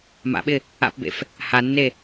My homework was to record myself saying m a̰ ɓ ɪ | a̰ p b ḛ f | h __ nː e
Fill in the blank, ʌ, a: a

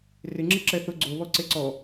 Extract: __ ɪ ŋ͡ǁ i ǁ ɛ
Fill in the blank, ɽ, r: r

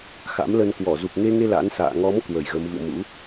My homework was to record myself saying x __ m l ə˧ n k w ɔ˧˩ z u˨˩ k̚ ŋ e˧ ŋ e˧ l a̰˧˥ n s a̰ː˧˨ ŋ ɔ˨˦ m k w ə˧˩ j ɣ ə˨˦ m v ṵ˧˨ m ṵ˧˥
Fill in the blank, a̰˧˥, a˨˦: a̰˧˥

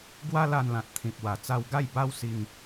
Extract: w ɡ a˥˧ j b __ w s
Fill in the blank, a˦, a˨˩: a˦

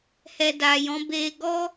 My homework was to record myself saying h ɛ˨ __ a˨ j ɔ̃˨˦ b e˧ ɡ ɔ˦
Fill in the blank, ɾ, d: d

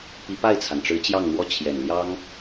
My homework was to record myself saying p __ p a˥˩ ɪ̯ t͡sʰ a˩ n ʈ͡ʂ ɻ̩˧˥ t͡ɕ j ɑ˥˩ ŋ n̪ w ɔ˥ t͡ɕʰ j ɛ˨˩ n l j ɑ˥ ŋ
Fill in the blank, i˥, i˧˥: i˧˥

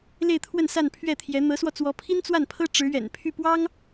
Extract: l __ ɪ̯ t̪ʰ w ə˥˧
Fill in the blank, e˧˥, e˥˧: e˥˧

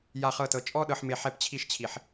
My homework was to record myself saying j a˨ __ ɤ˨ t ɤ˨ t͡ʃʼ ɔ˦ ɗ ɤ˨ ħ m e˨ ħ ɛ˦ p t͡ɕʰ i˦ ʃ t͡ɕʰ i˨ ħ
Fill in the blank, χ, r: χ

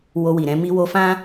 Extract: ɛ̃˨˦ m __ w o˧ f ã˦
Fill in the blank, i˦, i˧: i˧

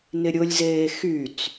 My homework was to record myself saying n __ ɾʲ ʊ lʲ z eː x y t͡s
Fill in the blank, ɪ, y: ɪ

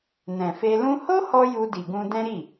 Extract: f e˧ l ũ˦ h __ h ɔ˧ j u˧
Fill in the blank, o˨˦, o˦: o˦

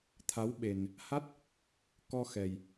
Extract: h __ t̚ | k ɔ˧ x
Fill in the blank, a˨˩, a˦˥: a˦˥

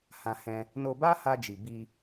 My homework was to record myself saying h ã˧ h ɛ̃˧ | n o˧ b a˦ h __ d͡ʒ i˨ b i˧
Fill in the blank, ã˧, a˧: a˧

